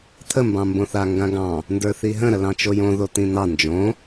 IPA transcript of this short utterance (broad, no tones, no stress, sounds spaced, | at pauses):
t̪ʰ ə m b ɑ̃ m b õ θ a ŋ ɡ ã ɡ ɑ̃ | n d ə˞ θ i ɦ ə̃ ɾ ə l ɑ̃ t͡ʃ o j õ ð o t̪ ĩ n̪ ɑ n d͡ʒ õ